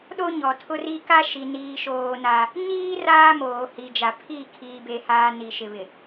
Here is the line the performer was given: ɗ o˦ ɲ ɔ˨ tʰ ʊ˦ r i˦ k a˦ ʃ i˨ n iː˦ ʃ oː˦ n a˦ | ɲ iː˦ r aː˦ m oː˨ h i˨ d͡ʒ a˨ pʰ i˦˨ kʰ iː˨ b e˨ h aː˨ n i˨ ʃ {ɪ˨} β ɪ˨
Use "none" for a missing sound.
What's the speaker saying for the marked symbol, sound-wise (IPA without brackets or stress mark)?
ɪ˨